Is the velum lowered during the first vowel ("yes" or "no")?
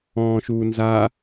yes